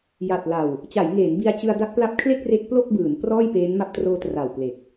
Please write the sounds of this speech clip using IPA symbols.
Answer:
j a˨˩ t̚ l a˨˩ w | t͡ɕ a˩˦ j ŋ eː˩˦ n b i˦˥ a̯ t͡ɕ ɯ˧ a̯ d a˦˥ k̚ p l a˦˥ p̚ kʰ l e˥˩ k̚ r e˦˥ k̚ p l o˥˩ k̚ b ɯː˩˦ n p r ɔː˥˩ j p eː˦˥ n m a˦˥ p̚ t r oː˦˥ t r a˨˩ w p l e˨˩ k̚

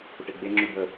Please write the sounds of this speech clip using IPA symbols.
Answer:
p ʊ ʈ e ɡ͡b e ŋ͡ǁ ʉ b ə

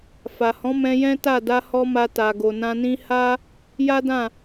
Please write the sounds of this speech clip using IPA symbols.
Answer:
f a˨ h ɔ̃˨˦ m ɛ̃˧ j ɛ̃˦ t a˦˨ d a˧ h ɔ˧ m a˧ t a˨ ɡ o˨ n ã˧ n ĩ˦ h a˦ | j a˦ d ã˦˨

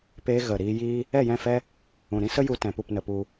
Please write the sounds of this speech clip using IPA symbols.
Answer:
p eː˧ ɣ ə˨ ɾ iː˧ j iː˦ | ɛ˦˨ j ɛ̃˦˨ f ɛ˦ | ũ˨ ɾ ĩ˦ s ə˦ j u˧ t ɛ̃˨ p u˦˨ p n ə˧ p u˧

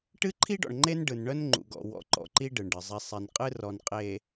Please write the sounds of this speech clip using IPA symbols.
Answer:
ʈ ɨ˦ ǃʰ i˦ ɖ ɔ̰˨ ɳ ŋ͡ǃ e˦ n ɖ ɯ˨ n ɳ œ˦ n ŋ͡ǃ ṵ˨ ɡ ɔ̰˨ w ɔ̰˨˦ ǃ ɔ̰˨ ǃ i˦ ɖ ɯ˨ ɳ ɖ ɨ˨ zˤ i˦ sˤ i˨ n qʼ ɨ˦ r ɔ˨ n qʼ e˨

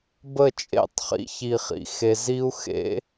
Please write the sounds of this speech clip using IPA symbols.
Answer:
b ə˦˨ t͡ʃʼ ḛ˦˨ tˤ χ ḭ˧ ç i˨ χ ḭ˨ x e˨ z i˦ u̯ x ḛ˦

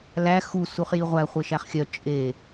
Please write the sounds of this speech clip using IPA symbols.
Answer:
l æ x u s u χ j i ʁʷ æ χʷ e ʃ æ χ xʲ œ t͡ʃʼ e

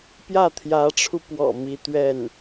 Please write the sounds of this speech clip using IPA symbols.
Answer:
p j ä˥˩ t̪ʰ j ä˧˥ ʈ͡ʂʰ u˧ p w ɔ̰˨˩ m i˥ t̪ ɥ ɛ˥˩ n

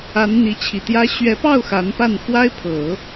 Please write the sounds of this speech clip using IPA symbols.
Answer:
a˧˥ n n̪ i˧˥ t͡ɕʰ i˨˩ t̪ j ä˥ ɕ ɥ ɛ˧˥ p ɑ˥˩ ʊ̯ x a˧˥ n p a˥˩ n x w a˥ ɪ̯ pʰ ɤ˨˩˦

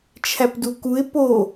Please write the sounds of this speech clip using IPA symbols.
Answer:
t͡ʃʰ æ p d u k u ɪ̯ p o

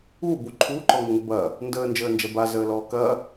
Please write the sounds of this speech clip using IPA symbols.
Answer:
uː b u ǃʰ uː ǃ ɔ ŋ ɐ ŋ ə b ɐː | n d əː n d͡ʒ əː n d͡ʒ ɐ b a z əː l ɔː k ɐː

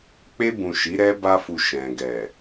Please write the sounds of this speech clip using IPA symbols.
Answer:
k͡p e˧ b ũ˨ ʃ i˨˦ ɾ ɛ˦ b a˧ f u˨ ʃ ɛ̃˨ ɡ ɛ˨

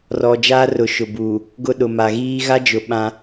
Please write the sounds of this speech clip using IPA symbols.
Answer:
r ɔ˨ d͡ʒ aː˦ r ʊ˨˦ ʃ ʊ˨ b uː˨ | ɡ ʊ˦ ɗ ʊ˨ m a˨ ɣ iː˦ ɣ a˦ d͡ʒ ʊ˨ ɓ ã˦

